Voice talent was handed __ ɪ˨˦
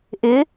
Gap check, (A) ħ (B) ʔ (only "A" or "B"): B